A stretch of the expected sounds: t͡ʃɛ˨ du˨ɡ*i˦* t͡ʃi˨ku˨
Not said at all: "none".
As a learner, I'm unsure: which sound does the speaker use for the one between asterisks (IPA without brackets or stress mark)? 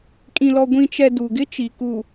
ɪ˦